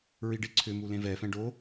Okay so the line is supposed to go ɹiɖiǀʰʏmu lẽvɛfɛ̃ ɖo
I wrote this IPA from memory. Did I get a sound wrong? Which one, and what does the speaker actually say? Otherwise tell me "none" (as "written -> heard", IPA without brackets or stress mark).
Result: none